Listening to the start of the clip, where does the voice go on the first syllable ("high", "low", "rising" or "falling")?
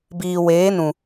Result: low